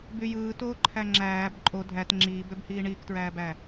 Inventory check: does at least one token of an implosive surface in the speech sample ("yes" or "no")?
no